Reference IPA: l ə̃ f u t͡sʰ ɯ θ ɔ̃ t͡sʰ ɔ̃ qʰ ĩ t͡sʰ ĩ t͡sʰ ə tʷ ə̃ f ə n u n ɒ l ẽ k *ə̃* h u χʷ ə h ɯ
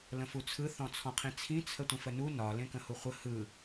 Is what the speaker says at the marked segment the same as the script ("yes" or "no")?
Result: yes